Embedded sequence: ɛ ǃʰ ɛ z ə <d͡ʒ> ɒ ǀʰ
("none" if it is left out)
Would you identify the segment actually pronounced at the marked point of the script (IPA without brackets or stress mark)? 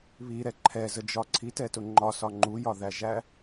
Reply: d͡ʒ